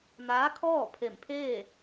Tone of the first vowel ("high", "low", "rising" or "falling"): rising